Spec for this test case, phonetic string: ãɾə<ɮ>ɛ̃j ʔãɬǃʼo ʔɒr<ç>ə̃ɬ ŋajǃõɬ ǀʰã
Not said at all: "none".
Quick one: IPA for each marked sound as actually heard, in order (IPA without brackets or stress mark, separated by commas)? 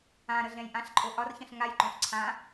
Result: ɮ, ç